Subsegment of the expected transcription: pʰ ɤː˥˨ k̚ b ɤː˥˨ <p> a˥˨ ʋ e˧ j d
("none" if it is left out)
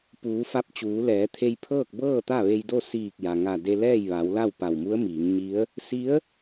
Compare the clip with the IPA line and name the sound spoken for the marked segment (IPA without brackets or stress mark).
t̪